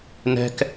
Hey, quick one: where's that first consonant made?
tongue tip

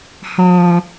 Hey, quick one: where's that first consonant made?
throat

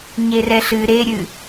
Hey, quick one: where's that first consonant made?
palate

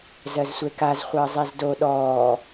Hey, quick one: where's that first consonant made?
tongue tip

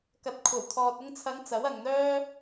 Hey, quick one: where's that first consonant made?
velum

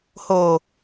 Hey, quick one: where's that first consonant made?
throat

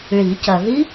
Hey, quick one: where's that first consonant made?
retroflex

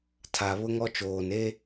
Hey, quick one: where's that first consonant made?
tongue tip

